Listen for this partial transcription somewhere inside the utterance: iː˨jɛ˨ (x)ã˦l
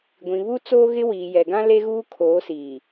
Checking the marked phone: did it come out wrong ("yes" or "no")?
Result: yes